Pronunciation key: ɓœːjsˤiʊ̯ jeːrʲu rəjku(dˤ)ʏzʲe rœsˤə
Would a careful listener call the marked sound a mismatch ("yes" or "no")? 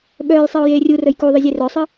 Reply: yes